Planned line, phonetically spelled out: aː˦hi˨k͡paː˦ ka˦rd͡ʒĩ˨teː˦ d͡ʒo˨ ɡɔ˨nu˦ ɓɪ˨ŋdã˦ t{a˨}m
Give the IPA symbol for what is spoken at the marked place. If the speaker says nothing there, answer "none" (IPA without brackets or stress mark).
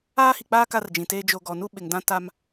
a˦